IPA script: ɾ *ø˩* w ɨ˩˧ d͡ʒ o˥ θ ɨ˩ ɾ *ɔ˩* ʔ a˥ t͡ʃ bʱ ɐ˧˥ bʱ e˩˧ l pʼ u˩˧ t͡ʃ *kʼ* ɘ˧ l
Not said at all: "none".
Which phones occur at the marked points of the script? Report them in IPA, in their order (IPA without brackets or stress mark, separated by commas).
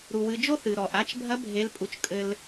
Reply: u˩, ɔ˩, kʼ